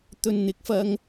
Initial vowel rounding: rounded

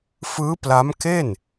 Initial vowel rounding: unrounded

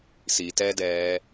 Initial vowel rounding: unrounded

